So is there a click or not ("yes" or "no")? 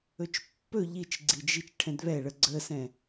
yes